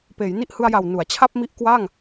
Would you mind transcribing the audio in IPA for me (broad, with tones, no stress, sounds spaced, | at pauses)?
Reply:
p eː˩˦ j n i˦˥ ʔ h ɯ˧ a̯ j a˨˩ w n u˩˦ a̯ t͡ɕʰ a˥˩ p̚ m i˦˥ ʔ k w aː˥˩ ŋ